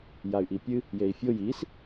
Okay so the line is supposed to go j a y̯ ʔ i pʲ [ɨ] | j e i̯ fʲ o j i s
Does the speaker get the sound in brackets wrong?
no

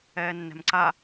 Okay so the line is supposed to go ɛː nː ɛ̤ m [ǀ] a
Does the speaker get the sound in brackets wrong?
no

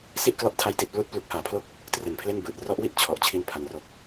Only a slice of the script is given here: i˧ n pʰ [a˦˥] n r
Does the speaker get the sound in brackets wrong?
yes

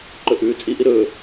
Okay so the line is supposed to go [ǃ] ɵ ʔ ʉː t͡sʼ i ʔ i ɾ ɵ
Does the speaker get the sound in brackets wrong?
no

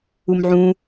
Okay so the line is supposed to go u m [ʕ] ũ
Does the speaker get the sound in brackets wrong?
no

